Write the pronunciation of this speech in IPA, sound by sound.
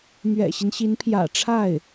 m ɥ ɛ̰˨˩ ɕ i˦ n ɕ i˧˥ n pʰ j ä̰˨˩ ʈ͡ʂʰ a˥˩ ɪ̯

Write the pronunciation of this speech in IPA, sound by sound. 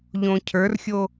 ʎ õ cʰ ə˞ r xʲ o

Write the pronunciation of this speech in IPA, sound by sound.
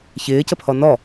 ç ɪː c ə pʰ ɔ n ɔ

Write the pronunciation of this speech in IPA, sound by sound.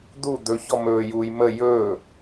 d̪ u d̪ ɵ ç ɔ m ɵː j uː j m ə j ɵː

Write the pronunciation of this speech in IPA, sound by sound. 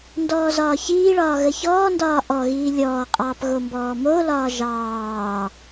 n d ɔː z ɒː ç iː ɭ ɒː ɣ ə ç ɔː n d ɒː ʔ ɔ ɣ iː lʲ ɔː qʼ ɑː p ɣ o m b ɔː m o l ɒː ʒ ɑː

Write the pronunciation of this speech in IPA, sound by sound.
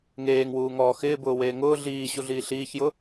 ŋ eː ŋ w uː ŋ ɔː x ɪː b ʊː w eː ŋ ʊː ɮ iː ɕ u ɮ iː ɬ iː ç j ʊ

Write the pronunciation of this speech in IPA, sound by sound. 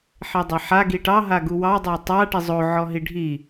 ħ e dˤ a ħ a ɡ i ʈ ɑ ɦ a ɡ u w ɑ dˤ a tˤ a ʈ i zˤ o ʕ ɔ ɦ i ɖʱ i

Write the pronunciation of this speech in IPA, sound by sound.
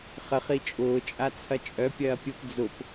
χ ə χ i t͡ʃʼ ʊː t͡ʃʼ a t͡sʰ ɐ t͡ʃʼ œ pʲ ɐː pʲ ʊ p d͡z ʊ p

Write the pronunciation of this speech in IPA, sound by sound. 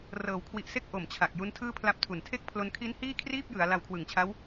r ɤː˩˦ w kʰ w i˨˩ ʔ s e˦˥ k̚ ʔ o˨˩ m t͡ɕʰ a˨˩ k̚ j u˦˥ n tʰ ɯː˥˩ pʰ l a˦˥ p̚ tʰ u˨˩ n tʰ e˥˩ k̚ pʰ l o˧ n kʰ i˦˥ n h iː˥˩ kʰ r iː˥˩ p̚ j ɯ˩˦ a̯ l a˧ w kʰ w ɯ˨˩ ŋ t͡ɕʰ a˦˥ w

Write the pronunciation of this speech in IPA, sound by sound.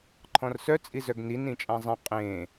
ǃʰ ɔ̃ r s œ t͡sʼ i z œ ɡ n i n ĩ t͡ʃʼ ã zˤ ɛ̃ qʼ ẽ

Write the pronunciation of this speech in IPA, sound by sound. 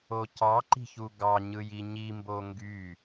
o c ɑ ǃ i̤ ç u ɡ ɑ ɲ ɯ j i ɲ i m b o ŋ ɡ y

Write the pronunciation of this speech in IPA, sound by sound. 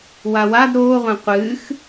w a w a d ɾ oː ʁʷ ẽ qʷ ɨː x

